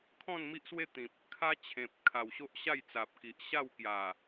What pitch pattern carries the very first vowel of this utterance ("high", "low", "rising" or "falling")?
falling